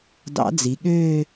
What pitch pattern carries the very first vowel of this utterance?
rising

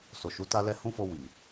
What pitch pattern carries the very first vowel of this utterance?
low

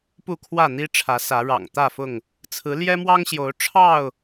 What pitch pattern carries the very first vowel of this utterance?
falling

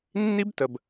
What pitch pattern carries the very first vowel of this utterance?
high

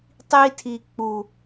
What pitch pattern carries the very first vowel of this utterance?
high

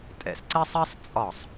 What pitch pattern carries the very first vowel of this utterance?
falling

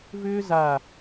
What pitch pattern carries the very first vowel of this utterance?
high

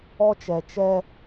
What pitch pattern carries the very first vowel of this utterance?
high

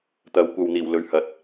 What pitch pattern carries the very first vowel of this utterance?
rising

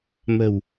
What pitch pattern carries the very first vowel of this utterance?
low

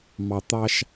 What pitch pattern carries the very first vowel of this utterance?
low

